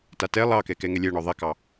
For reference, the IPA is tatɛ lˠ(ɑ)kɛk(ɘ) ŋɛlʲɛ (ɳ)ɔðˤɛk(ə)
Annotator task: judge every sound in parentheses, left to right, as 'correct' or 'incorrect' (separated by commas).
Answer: correct, incorrect, correct, incorrect